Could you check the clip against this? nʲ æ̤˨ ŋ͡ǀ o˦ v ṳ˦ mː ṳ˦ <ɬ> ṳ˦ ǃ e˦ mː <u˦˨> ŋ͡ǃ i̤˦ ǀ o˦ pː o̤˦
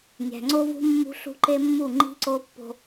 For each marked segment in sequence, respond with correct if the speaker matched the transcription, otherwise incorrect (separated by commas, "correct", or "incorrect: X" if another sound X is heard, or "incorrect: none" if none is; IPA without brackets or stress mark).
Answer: correct, correct